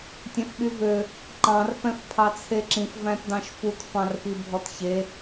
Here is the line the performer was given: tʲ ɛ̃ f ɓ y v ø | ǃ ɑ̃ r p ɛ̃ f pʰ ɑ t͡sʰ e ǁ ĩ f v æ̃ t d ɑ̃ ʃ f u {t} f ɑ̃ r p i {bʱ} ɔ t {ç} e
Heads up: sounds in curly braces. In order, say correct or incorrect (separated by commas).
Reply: correct, correct, correct